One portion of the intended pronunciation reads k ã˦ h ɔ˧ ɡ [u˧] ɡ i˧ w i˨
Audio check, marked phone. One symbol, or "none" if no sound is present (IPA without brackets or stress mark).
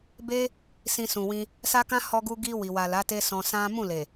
u˧